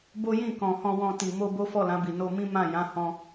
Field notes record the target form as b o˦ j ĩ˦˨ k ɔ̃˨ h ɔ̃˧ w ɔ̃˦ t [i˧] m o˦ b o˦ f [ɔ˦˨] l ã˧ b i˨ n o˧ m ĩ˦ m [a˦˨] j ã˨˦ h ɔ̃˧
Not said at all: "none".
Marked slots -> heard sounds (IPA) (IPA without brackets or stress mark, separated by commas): i˧, ɔ˦˨, ã˦˨